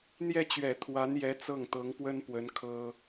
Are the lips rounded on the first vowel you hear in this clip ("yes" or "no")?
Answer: no